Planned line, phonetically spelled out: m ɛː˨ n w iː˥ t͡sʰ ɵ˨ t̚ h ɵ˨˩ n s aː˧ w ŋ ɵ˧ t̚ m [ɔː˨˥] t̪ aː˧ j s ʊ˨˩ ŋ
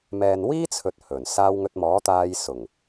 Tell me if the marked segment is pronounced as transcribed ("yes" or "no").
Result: yes